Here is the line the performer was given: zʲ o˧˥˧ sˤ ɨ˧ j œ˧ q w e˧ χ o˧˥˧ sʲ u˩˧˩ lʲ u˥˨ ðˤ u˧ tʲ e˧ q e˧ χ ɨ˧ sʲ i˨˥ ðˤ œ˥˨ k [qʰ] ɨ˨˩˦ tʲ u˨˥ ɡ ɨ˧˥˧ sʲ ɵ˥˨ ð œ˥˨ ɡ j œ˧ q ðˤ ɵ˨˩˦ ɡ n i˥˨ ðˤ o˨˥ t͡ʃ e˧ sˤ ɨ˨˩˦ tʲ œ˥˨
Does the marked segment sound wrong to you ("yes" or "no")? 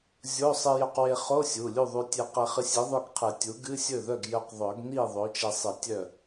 no